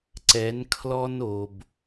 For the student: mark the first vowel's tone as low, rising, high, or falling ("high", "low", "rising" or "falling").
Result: rising